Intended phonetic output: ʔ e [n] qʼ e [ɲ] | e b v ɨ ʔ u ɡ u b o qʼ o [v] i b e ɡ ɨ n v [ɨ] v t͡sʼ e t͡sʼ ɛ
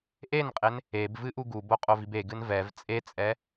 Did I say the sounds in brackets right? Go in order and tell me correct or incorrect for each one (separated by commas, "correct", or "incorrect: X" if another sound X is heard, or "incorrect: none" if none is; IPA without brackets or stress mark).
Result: correct, incorrect: n, correct, incorrect: ɛ